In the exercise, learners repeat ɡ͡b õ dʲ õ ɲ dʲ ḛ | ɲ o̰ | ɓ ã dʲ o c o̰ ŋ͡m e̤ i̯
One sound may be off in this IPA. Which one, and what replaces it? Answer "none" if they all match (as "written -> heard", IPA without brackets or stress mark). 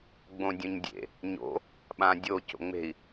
none